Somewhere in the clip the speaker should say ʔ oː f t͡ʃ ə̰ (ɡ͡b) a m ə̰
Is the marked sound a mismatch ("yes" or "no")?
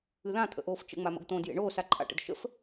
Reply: yes